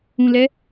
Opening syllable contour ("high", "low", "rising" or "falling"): low